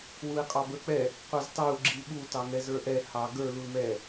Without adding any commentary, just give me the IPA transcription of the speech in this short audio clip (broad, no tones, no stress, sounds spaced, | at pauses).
w u i̯ qʼ ɑ b ə˞ k͡p ɛ | qʷ ɑ z t ɑ u̯ ɡ͡ǁ i ɓ u t ɑ ŋ ɛ z ə˞ ʔ ɛ h ɑ ɡ ə˞ l u l m ɛ